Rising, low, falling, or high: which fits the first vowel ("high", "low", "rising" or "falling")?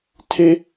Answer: high